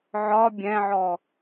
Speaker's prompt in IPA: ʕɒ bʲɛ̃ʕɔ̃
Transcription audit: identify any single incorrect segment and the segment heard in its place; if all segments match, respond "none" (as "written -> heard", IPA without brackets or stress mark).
ɔ̃ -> ɔ